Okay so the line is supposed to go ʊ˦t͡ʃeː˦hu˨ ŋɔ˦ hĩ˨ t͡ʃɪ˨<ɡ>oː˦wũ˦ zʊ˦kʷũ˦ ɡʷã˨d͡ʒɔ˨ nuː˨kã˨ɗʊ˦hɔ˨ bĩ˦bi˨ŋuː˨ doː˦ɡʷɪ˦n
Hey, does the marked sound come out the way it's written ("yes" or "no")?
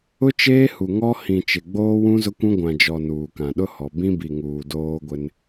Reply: no